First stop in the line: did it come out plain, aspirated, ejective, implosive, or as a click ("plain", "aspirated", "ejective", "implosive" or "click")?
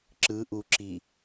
click